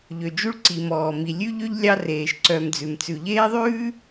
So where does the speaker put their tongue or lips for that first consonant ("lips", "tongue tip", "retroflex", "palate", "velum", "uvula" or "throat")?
palate